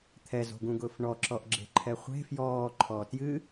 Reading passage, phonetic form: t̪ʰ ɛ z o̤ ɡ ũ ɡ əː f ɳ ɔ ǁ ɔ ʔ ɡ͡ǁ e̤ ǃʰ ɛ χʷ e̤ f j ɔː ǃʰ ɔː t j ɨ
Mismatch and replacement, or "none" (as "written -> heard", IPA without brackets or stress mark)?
əː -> ʊː